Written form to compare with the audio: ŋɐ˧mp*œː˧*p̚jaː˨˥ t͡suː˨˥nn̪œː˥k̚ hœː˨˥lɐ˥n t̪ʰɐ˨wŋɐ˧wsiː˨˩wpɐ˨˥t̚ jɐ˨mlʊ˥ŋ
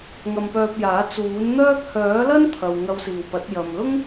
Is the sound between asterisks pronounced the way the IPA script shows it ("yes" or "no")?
yes